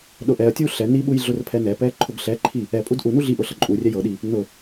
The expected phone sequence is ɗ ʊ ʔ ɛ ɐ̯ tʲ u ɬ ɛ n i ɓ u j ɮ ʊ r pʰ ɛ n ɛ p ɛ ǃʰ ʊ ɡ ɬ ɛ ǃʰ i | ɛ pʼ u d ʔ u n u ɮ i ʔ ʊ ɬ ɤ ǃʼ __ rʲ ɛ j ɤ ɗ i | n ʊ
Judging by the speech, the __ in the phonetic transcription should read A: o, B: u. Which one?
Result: B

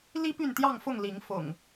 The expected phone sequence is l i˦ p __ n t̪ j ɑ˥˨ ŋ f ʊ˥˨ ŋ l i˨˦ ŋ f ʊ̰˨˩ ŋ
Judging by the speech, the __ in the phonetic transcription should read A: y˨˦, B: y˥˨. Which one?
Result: B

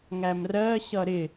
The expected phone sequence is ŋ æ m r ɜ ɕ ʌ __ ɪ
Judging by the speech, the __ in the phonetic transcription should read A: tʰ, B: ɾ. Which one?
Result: B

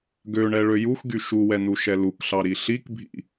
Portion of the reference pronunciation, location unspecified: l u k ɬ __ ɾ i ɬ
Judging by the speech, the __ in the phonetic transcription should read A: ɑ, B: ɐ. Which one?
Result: A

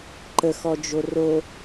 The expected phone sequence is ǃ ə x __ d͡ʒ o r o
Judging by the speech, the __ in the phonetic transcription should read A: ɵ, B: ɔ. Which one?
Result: B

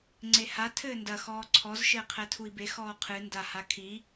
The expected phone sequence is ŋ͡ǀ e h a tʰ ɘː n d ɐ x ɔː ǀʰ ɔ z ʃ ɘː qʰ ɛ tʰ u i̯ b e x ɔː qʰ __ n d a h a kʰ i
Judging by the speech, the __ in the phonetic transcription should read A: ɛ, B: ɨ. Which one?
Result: B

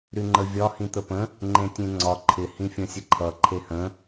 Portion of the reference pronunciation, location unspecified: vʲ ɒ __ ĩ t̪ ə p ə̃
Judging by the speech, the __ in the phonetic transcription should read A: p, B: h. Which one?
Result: B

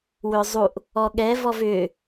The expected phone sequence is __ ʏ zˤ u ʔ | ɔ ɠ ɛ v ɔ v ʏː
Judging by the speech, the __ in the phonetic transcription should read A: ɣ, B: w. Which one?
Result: B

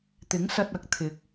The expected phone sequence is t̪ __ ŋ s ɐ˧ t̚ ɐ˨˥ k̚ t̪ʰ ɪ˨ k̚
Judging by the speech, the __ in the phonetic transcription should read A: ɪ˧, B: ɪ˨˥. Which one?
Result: B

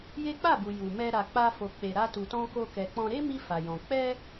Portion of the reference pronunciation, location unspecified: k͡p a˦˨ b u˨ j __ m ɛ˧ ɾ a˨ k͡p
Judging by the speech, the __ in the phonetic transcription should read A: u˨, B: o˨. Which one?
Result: A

